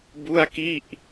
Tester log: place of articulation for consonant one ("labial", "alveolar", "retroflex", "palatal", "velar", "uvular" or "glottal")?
labial